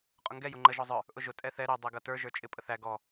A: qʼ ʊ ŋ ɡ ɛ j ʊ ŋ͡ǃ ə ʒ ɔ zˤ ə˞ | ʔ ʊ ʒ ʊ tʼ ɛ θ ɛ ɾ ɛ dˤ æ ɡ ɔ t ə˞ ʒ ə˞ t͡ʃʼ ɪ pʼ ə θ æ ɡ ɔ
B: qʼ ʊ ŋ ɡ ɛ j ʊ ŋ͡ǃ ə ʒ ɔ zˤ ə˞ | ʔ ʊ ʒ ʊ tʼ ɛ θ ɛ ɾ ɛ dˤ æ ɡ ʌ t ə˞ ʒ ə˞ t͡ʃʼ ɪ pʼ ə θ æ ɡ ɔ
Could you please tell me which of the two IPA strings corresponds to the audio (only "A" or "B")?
B